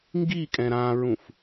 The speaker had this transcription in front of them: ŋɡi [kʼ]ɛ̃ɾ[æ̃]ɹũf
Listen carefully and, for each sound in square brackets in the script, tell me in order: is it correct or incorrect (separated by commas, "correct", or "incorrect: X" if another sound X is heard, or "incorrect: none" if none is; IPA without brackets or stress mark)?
correct, incorrect: ã